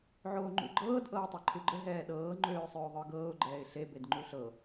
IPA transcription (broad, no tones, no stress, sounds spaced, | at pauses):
ʕ oː ŋ͡ǃ ṵ ɡ͡ǃ ɤː d ʔ ɤː tˤ e ǃʰ u ɡ͡ǃ ə ɦ ɛː ɗ ɤː ŋ͡ǃ øː sˤ øː ðˤ ə˞ ɡ ɤː ʊ̯ ɡ͡ǃ ɛː ɪ̯ ɬ e b e d ŋ͡ǃ u ɬ ɤ